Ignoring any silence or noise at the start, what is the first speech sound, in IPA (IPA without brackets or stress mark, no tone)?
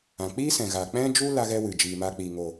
ã